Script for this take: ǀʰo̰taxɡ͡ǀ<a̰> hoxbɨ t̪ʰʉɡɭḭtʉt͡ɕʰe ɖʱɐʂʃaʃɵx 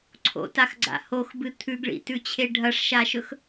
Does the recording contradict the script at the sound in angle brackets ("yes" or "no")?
no